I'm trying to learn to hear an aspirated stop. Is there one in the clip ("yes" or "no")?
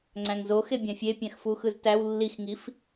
no